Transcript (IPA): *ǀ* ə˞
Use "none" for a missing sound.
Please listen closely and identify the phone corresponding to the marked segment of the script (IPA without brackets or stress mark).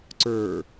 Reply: ǀ